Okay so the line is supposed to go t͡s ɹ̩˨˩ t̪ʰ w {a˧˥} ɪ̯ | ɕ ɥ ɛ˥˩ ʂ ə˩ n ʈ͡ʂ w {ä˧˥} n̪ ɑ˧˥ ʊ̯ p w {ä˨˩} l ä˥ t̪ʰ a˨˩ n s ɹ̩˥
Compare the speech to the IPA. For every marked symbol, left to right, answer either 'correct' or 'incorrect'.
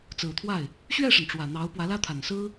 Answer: incorrect, incorrect, incorrect

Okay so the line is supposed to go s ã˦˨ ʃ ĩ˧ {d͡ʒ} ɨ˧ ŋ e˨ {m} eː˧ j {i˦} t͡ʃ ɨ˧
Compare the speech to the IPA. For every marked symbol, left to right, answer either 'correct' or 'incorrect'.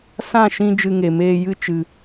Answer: correct, correct, incorrect

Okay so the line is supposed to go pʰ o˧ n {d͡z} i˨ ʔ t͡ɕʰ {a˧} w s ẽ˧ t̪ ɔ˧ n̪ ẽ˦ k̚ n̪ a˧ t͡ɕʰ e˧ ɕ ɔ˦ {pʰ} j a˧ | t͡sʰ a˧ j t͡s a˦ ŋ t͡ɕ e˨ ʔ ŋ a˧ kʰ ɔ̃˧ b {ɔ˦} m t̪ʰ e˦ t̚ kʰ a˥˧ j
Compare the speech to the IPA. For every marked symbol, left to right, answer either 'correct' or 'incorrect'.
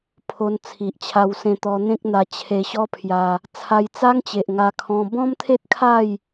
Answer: incorrect, correct, correct, incorrect

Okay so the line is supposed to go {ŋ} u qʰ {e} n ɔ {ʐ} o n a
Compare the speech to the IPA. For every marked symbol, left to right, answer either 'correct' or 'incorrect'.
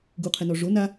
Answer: incorrect, incorrect, correct

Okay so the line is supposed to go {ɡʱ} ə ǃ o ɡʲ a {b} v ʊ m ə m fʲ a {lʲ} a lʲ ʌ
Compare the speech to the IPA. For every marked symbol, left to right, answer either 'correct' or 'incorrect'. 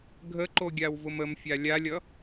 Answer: correct, incorrect, correct

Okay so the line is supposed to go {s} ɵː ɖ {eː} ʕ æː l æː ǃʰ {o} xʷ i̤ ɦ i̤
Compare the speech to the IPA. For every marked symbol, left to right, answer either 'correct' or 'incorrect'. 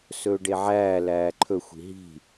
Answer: correct, incorrect, incorrect

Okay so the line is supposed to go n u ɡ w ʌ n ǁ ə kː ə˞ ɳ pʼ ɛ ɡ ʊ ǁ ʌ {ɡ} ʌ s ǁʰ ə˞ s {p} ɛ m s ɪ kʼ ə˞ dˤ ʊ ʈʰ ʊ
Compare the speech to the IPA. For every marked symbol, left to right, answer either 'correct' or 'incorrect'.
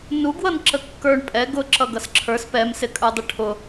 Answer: correct, correct

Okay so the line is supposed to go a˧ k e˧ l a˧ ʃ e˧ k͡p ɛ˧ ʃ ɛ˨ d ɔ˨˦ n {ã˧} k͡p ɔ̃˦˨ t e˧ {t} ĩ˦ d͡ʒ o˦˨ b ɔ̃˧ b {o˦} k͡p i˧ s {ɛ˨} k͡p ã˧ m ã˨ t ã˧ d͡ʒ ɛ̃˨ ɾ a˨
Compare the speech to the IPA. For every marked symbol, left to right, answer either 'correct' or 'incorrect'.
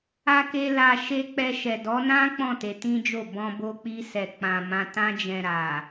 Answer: incorrect, correct, incorrect, correct

